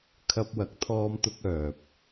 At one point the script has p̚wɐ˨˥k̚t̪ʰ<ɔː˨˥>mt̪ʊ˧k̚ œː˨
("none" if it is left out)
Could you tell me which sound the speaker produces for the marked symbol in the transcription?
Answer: ɔː˧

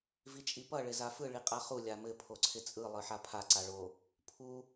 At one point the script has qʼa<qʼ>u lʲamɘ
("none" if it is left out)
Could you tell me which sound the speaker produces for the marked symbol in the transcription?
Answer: χ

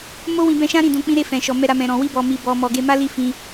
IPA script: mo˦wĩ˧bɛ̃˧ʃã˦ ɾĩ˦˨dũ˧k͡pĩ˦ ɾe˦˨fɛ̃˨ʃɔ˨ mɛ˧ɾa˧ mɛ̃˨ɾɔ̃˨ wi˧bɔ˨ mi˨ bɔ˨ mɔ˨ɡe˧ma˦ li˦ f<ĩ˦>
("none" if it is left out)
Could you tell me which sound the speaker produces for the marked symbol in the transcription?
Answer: ĩ˧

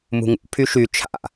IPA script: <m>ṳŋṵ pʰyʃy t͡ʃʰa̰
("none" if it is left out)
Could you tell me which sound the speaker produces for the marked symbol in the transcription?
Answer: m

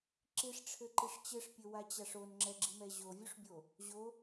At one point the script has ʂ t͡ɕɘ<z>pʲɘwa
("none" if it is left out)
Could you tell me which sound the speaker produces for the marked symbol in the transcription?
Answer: ʂ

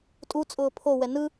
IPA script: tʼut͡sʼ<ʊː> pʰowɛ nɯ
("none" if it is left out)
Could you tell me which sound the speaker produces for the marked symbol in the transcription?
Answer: ʊː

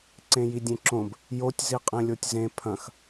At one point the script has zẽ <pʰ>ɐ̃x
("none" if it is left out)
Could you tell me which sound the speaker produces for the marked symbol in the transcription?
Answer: pʰ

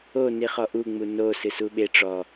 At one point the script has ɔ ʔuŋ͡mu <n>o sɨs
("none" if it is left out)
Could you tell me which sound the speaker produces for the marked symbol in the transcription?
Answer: n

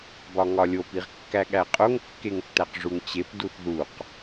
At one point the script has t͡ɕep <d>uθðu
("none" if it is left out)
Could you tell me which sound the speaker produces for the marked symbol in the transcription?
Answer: d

